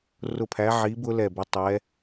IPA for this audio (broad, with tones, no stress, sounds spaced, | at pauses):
r ʊ˦˨ pʰ æ˧˥ ʕ i˧˥ b ʊ˧˥ l ɛ˦˨ b ə˧˥ tˤ ɛ˧˥